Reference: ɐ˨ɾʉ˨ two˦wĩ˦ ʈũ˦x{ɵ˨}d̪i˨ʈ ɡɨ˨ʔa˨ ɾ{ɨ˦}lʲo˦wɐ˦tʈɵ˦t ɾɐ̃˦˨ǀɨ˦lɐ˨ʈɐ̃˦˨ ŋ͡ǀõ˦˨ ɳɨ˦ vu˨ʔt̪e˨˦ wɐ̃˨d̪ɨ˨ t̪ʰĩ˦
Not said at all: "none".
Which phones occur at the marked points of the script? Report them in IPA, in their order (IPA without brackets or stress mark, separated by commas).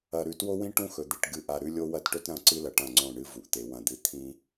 ɵ˨, ʉ˦